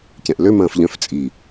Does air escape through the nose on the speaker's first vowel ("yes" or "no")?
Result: yes